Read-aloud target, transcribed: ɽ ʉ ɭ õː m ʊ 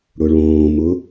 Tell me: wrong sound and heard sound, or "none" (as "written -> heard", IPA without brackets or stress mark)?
ʉ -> ʊ